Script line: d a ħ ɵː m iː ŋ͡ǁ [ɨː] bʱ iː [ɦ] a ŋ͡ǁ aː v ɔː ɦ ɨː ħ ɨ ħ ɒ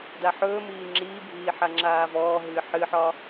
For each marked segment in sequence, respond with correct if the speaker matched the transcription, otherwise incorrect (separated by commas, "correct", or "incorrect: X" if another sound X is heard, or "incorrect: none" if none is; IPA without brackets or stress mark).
incorrect: iː, incorrect: ħ